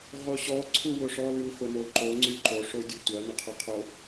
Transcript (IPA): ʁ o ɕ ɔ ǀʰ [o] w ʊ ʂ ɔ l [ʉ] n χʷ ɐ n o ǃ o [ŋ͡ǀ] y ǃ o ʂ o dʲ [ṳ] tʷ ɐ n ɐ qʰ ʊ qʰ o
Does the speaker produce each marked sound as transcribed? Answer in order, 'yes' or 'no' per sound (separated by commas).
no, yes, yes, no